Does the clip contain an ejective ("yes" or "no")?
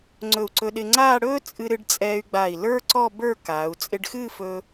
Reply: yes